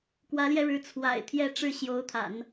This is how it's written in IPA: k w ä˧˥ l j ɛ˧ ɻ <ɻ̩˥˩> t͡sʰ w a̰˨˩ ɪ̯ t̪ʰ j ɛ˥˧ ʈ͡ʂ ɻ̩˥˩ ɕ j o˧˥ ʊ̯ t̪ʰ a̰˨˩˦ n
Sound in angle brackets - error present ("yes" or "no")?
yes